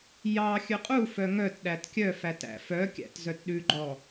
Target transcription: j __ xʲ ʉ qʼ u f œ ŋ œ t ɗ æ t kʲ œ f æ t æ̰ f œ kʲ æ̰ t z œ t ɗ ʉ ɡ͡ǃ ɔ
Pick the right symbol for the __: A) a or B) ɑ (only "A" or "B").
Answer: B